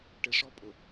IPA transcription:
ʈ ɪ ʂ ɔ pʼ ʊ

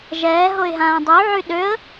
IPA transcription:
ʒ ɛː ɦ o ɪ̯ ɦ ãː dˤ u ʕ y ɗ ø ə̯

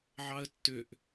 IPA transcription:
ʕ ɑ ə̯ tː ʏ ʔ

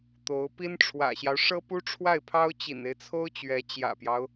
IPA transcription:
t̪ o˧˥ ʊ̯ p i˥ n ʈ͡ʂʰ w ä̰˨˩ ɕ j ɑ˦ ʊ̯ ʂ ɤ˥ p u˥ ʈ͡ʂʰ w a˥˩ ɪ̯ pʰ ɑ˥ ʊ̯ t͡ɕ ḭ˨˩ n e˦ ɪ̯ t͡sʰ o˥ ʊ̯ t͡ɕ ɥ ɛ˧˥ t͡ɕ j ä̰˨˩ p j ɑ˦ ʊ̯

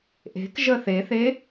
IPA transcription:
ʔ e̤ k ʒ ə θ e θ e

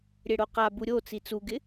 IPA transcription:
ɾʲ e ɽ o q a b u ɾʲ o t͡s i t͡s u ɡ ɪ

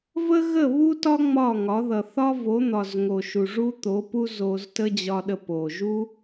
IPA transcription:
v ə˦ ɣ ə˦˨ β u˦ t ɒ˦ ŋ͡m ɒ˦˨ ŋ ɒ˨˦ ð ʌ˨ θ ɒ˦ v o˨˦ n̪ ɒ˨ z ŋ o˨ ʃ u˨ ʐ u˦ t̪ o˨˦ p u˦ z o˧ z t ə˦ d͡ʑ ɒ˧ ɗ ə˧ p o˨ ʒ u˦

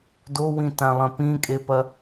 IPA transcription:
d o w ĩ t ã lˠ ɐ̃ p ĩ kʼ e p ɐ

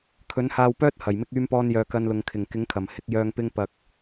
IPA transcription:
kʰ ɵ˨˥ n h aː˧ w p œː˥ t̚ h ɐ˨˩ j m ɪ˧ k̚ yː˧ m p ɔː˧ n j œː˨ k ɐ˧ n l ʊ˨ ŋ kʰ ɪ˨˩ ŋ k ɪ˨˥ ŋ kʰ ɐ˨˩ m h ɪ˨˥ k̚ j œː˧ ŋ p ɪ˧ ŋ p ɐ˨ k̚

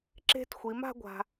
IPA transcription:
ǁ e̤˦ t xʷ i˨˦ m a̤˦ ɡʷ a̤˧

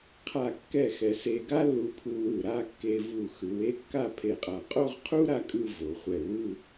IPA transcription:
qʰ a˥˧ kː ɛ˥˧ x ɛ˧ s e˧ ɡ a˥ lː u˧ pʰ u˧ w ɯ˧˩ ɾ a˥˧ kː e˧ v u˧˩ x ɯ˩˧ w e˥˧ kː a˥˧ pʰ e˧˩ qʼ a˧˩ qʼ o˥˧ ʁ qʰ u˥ ɾ a˧ kʼ ɯ˥˧ v o˩˧ χʷ ɛ˧˩ w ɯ˥˧

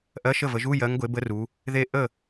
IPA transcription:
ʔ ɜ˧˥˧ ʃ ə˥˩ v ə˨˦ ʒ u˧˥˧ j ɜ˨˦ ŋ ɡʷ e˨˦ b ə˦˥ r u˨˦ | ð e˥˩ ʔ ə˥˩

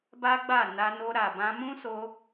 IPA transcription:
b a˦ ɡ͡b a˦˨ n a˧ n o˧ ɾ a˨ b ã˧ m ũ˦ s o˧

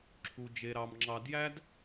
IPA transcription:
ǁʰ u˧ d͡ʒ e˧ ɾ ɑ˧ m ŋ͡ǁ ɑ˧ d j æ˦ d

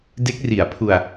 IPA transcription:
d e˦˥ k̚ r i˨˩ a̯ pʰ u˧ a̯

